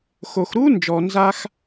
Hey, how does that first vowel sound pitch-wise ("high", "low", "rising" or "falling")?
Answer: low